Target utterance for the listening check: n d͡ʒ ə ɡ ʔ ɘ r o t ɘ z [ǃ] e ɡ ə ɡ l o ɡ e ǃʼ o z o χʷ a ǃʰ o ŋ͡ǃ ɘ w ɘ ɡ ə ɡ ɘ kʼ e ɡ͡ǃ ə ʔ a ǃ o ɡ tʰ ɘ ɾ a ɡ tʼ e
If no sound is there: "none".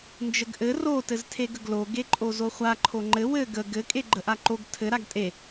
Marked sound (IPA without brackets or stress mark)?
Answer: tʰ